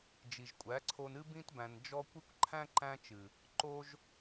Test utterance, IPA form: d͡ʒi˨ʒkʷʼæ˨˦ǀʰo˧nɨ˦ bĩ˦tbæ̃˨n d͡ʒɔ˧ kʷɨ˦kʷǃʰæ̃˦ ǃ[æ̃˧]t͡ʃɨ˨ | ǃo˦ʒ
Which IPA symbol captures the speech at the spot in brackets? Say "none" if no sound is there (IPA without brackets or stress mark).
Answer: æ̃˦